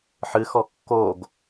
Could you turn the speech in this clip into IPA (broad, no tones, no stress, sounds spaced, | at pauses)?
ħ ɨ x ɔ kː o ɡ